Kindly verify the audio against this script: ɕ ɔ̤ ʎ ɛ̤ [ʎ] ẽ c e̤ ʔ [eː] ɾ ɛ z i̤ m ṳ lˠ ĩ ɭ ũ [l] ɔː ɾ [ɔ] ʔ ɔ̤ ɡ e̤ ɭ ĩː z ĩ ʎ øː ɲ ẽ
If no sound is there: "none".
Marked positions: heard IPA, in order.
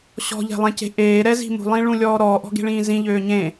lˠ, eː, lʲ, ɔː

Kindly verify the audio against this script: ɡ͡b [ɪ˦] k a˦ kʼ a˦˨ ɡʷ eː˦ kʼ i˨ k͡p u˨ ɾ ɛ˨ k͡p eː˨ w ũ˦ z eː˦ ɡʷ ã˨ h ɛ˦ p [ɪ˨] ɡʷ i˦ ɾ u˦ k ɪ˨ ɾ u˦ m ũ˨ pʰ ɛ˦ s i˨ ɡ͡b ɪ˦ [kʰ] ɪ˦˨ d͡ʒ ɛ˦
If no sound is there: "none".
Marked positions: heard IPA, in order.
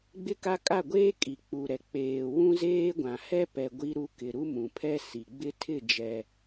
ɪ˦, ɛ˨, tʰ

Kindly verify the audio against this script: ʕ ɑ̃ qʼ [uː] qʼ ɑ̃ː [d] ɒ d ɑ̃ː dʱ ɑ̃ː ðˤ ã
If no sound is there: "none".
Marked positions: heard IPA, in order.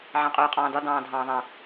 uː, d

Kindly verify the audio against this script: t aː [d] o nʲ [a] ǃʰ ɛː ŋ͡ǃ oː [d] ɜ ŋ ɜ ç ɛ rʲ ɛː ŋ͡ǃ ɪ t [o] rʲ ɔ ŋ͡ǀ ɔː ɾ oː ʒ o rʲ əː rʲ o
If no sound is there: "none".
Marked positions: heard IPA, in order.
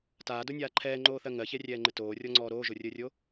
d, aː, θ, oː

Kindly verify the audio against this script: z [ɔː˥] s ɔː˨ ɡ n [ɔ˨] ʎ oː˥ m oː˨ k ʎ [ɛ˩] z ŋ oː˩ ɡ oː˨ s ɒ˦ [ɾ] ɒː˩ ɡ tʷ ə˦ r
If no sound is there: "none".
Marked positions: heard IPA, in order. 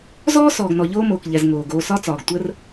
ɔː˥, ɔ˨, ɛ˨, t͡s

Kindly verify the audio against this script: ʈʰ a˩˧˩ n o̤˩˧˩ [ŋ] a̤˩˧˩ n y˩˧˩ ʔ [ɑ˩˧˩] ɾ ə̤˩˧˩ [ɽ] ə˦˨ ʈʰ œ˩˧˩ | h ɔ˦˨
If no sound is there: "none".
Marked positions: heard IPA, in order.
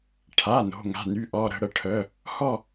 ŋ, ɔ˩˧˩, ɽ

